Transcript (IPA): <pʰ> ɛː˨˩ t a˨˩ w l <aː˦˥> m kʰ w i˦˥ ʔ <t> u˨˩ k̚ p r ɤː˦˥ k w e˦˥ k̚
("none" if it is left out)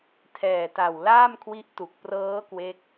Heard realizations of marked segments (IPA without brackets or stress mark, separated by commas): tʰ, aː˥˩, t